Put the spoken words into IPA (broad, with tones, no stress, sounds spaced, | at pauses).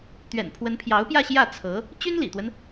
t̪ ɥ ɛ̰˨˩ n pʰ w ə˧˥ n pʰ j ɑ˧˥ ʊ̯ p j ä˥˧ ɕ j ä˥˩ t͡sʰ ɤ˧˥ | t͡ɕ y˥ n l ḭ˨˩ t̪ w ə˦ n